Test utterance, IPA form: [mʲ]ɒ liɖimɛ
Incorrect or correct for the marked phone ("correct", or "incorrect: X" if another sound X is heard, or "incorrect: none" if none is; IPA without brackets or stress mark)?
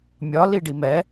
correct